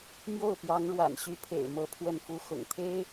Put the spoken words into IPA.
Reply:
m j o˥˩ ʊ̯ p j ɑ˧˥ ŋ ɻ w a̰˨˩ n ɕ y˧˥ pʰ ḛ˨˩ ɪ̯ m ɤ˧˥ pʰ w ə˥˩ n f u˥ x ʊ̰˨˩ ŋ t̪ʰ e˥ ɪ̯

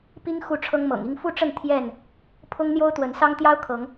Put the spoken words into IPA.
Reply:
p i˦ ŋ x u˥˨ ʈ͡ʂʰ ɤ˦ ŋ m ɤ̰˨˩ ŋ i˥˨ ŋ f u˥˨ ʈ͡ʂ ə˥˨ n t̪ʰ j ɛ˥˨ n | pʰ ʊ˦ ŋ n̪ j o˦ ʊ̯ t̪ w ə˨˦ n s ɑ˦ ŋ t̪ j ɑ˦ ʊ̯ kʰ ɤ˨˦ ŋ

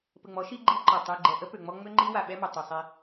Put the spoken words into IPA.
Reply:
p ə˨ ŋ͡m ɔ˨˦ ʃ i˦ ɡ͡ǃ i˦ ǃ ɔ˨ tˤ y˨ ɡ͡ǃ ɛ˨ ʔ ə˦ p ø˨ ŋ͡m ɔ˦ ŋ͡m ø˦ ŋ͡ǃ i˦ w a˨ ɓ ɛ˦ m œ˨ tˤ i˨ sˤ e˦

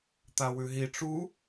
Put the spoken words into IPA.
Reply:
t̪ a w ʉ ɦ i ʈ͡ʂ u

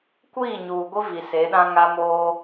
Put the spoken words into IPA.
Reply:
kʷ iː˦˨ ɲ uː˨ ɡʷ i˦ v i˨ s e˨˦ ɗ ã˦ ŋ a˦ m oː˦

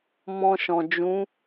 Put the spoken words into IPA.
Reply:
m ɔ̃˧ ʃ ɔ̃˨ d͡ʒ ũ˨˦

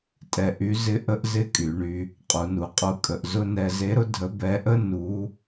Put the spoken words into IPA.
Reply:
tʼ ɛ˧ ʔ y˧˥ z ɪ˧˥ ʔ ə˥ ʔ z ɪ˧˥ kʼ y˩˧ ɳ y˧ | qʼ u˩˧ n u˩˧ qʼ u˧ kʼ ə˩˧ ʔ z ʊ˧ n ɛ˧ z e˧˥ ɾ ʊ˥ dʱ ə˧˥ b ɛ˧˥ ʔ ə˥ n u˧˥

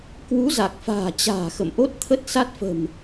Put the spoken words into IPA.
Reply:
k w u˨˦ z a˨˩ k̚ f a̤ː˨˩ t͡ɕ a̤ː˨˩ x ə̰˧˨ m ʔ o˦˥ t̚ t̪ʰ ə˦˥ t̚ s a˦˥ t̚ f ə̤˨˩ m

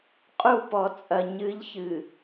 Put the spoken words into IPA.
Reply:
qʼ u˦˨ p ɔ˨ t͡sʼ ɐ˨ ɲ ɨ˨˦ ʎ ç ɨ˨

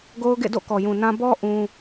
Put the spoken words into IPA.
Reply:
ɡ o˦ ʊ̯ ɡ ḛ˦˨ d o̰˦˨ k ɔ˨ j ũ˨ n ã˦ b ɔ˦ ʔ ũ˦

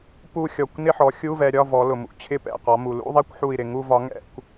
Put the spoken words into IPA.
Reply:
p u˥˧ xʲ ɔ˧˩ kʷ n ɪ˥˧ ħ ɔ˩˧ xʲ u˧˥˧ v ɛ˩˧ ɾʲ ɒ˧˥˧ v ɔ˩˧ l ʊ˩ m ṵ˩˧ t͡ɕʰ ɪ˧˥˧ p ɛ̰˧˩ q ɒ˩˧ m u˩ l ṵ˧˥˧ ðˤ ɛ˥˧ kʷ ħ u˧˩ i̯ ɾ ɪ˧˩ ŋ u˥˧ v ɒ˨˥ ŋ ɛ̰˥˧ kʷ

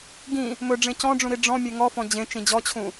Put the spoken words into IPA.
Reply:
ɡ ĩ | m ɵ ɖ͡ʐ ẽ c ɔ̃ ɖ͡ʐ ũ ɾ i ɖ͡ʐ ɔ̃ mʲ e ŋ ɔ f ɔ̃ d͡ʑ ẽ t͡ʃ ĩ d͡ʑ ɔ t͡ɕʰ ũ

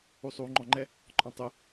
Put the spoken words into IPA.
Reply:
u sˤ u ŋ͡ǃ ɔ̃ ŋ͡ǃ ɛ | ǃʼ ɔ̃ tˤ ʊ

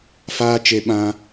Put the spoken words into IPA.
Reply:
f aː˦ t͡ʃ e˧ ɓ ã˧

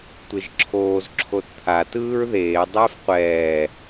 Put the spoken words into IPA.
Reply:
tʷ e ʒ ǁʰ oː z ǁʰ o t t̪ʰ a t ɯː ɹ ð eː dˤ eː f qʷ ɛː

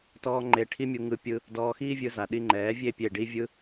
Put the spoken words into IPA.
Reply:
t ɔː˦ ŋ͡ǃ e˧ ʈʰ i˦ mʲ u˧ ŋ ɯ˦ pʲ ɯ˧ | d ɔː˧ x iː˦ vʲ ɯ˧ z a˨ ɗ i˧ ŋ͡ǃ ɛː˨˦ vʲ e˦˨ pʲ e˦˨ ɖ i˦ vʲ ɯ˦

